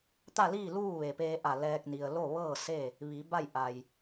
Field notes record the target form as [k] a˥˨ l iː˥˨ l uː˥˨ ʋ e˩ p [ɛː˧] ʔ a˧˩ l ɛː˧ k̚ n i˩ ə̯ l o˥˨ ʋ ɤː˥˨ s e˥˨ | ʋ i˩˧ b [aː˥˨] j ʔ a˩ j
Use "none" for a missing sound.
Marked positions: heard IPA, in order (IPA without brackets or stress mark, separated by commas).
t̪, eː˧, a˥˨